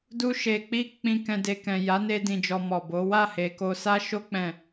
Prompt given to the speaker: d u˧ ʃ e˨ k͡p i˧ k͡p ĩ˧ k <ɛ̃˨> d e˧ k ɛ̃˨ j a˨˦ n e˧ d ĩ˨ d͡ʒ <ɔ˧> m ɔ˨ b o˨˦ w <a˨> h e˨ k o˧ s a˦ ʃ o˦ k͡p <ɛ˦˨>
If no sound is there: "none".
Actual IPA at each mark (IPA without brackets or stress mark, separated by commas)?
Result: ɛ̃˧, ɔ˧, a˦˨, ɛ̃˦˨